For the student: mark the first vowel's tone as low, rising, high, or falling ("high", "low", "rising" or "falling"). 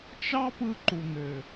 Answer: high